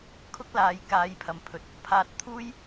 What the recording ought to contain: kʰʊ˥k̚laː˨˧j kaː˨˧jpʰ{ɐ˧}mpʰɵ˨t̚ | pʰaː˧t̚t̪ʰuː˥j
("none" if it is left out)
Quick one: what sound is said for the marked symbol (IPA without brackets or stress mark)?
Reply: ɐ˨